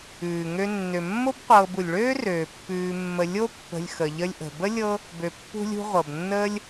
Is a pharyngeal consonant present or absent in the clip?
absent